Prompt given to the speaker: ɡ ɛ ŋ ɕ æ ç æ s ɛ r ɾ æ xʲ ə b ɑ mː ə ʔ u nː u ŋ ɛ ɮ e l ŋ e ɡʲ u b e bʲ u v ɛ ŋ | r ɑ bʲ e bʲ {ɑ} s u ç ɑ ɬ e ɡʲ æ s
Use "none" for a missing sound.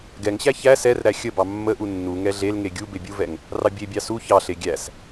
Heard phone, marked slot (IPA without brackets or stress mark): ɑ